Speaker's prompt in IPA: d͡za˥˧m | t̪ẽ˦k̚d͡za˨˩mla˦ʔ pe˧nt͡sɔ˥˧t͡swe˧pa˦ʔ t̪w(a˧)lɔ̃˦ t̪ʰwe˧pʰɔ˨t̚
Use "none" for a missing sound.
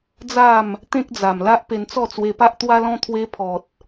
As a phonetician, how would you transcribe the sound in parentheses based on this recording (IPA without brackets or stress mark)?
a˦